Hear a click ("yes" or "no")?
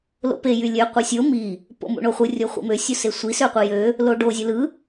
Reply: no